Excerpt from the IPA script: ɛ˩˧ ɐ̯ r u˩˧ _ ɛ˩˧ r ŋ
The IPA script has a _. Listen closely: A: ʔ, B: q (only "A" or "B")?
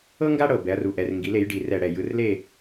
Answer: A